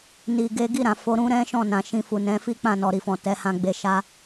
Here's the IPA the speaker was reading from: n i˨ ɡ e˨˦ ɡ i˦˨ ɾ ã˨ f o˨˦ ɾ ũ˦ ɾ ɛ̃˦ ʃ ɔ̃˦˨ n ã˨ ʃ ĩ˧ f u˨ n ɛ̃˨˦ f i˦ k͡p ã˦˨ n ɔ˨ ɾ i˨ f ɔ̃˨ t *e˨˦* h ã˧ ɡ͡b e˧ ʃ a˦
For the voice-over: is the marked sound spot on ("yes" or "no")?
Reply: no